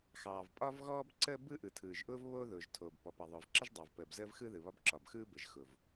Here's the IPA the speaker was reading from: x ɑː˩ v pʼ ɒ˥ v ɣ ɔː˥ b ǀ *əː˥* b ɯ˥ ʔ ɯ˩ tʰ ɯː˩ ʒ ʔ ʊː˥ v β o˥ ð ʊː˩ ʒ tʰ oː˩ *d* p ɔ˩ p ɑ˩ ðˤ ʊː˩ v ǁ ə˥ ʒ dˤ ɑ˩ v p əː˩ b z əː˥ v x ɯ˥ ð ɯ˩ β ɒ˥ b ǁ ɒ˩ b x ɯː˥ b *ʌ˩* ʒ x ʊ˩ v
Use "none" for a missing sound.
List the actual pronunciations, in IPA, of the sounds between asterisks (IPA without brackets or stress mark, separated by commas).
əː˥, b, ə˩